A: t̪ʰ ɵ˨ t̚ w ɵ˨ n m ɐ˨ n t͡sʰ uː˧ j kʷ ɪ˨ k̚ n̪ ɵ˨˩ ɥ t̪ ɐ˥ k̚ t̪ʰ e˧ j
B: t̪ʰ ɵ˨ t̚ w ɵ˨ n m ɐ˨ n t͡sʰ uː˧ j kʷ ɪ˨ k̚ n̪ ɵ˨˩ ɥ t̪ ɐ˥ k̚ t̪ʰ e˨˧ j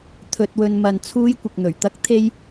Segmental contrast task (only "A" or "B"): A